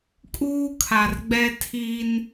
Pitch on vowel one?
high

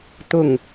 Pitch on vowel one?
falling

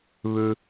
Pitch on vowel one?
low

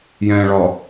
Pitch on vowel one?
low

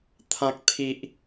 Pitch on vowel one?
high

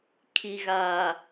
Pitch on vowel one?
low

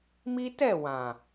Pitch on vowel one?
high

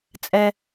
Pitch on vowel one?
low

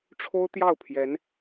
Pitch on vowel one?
high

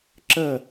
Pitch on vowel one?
falling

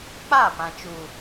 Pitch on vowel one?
falling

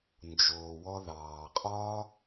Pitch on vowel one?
low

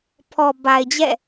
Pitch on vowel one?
low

